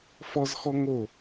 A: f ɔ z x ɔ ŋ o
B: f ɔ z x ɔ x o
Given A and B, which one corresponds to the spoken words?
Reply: A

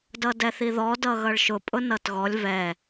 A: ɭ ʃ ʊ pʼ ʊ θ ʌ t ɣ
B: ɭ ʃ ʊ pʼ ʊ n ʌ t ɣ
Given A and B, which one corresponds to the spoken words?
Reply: B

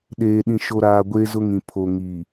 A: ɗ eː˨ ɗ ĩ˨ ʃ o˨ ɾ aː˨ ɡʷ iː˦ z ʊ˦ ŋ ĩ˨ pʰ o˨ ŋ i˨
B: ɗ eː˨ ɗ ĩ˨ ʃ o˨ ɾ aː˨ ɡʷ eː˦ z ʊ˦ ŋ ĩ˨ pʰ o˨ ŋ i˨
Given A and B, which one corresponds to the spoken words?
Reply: B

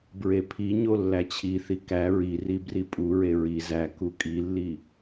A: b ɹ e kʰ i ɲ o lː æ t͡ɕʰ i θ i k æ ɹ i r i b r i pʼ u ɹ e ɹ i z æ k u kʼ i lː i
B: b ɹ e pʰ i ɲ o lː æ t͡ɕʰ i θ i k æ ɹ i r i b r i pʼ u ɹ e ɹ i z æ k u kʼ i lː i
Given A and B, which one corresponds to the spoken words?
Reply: B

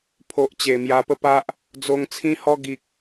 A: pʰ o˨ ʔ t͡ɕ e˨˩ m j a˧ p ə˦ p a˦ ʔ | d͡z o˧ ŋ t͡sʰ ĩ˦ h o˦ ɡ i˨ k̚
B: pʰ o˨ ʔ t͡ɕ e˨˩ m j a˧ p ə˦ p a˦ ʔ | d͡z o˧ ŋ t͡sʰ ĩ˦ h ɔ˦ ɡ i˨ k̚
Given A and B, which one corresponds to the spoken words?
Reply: B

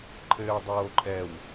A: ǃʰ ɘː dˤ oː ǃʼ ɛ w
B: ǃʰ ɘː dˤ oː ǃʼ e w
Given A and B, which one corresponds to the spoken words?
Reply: A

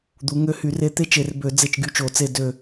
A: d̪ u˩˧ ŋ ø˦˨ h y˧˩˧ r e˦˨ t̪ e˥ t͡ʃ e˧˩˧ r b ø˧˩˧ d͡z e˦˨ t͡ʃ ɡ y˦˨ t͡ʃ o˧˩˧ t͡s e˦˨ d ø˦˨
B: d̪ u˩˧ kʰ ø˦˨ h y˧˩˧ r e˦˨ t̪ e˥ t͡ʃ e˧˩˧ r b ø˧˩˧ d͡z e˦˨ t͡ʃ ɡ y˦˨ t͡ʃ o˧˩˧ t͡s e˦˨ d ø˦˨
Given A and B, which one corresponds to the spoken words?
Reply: A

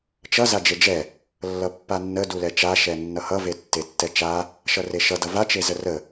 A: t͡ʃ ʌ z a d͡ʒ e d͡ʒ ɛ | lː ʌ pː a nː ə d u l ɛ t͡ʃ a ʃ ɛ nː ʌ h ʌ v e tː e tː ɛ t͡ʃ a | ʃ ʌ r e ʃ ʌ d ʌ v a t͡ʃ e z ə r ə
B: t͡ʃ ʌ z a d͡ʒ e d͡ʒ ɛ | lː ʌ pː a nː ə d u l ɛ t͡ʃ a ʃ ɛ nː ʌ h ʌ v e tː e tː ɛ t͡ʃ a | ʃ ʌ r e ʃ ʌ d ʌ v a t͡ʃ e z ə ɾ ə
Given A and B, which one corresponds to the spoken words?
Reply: A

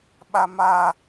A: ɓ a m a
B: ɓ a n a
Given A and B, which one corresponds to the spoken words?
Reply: A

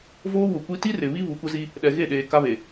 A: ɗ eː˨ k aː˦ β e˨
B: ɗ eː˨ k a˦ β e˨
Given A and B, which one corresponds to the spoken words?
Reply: B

